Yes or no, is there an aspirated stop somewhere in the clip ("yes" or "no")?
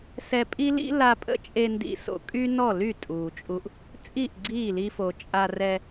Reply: no